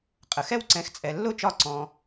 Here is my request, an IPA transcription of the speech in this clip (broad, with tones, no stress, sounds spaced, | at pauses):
qʼ ə˩ x ɛ˥˨ w ǀ ɛ̃˩˥ x t͡sʼ ɛ˩ lː ʊ˥˨ t͡ʃ ɒ˧˩ ǀ ɔ̃˩